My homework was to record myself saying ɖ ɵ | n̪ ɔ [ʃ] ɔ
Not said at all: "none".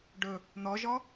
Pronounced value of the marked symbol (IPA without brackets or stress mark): ʒ